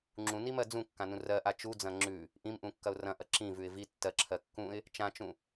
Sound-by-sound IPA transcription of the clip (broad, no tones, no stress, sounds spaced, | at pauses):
ŋ͡ǁ ũ n i m ɜ d͡z ũ kː ã n ũ r ɜ ʔ a t͡ʃ u d͡z ɐ̃ ŋ͡ǁ ʉ | ʔ ĩ m ʔ ũ kː ɐ ʊ̯ r ɐ̃ ʔ ɐ ǁ ĩ v ʉ ɪ̯ v i tː ɜ ǁʰ ɜ kː ũ ɪ̯ | t͡ʃ ã t͡ʃ ũ